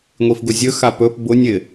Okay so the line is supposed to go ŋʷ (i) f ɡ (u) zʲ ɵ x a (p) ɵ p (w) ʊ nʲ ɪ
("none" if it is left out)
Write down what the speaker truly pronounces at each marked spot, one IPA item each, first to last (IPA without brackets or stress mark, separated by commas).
i, ʊ, p, b